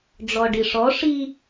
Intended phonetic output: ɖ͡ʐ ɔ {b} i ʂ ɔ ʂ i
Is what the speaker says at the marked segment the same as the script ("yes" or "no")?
no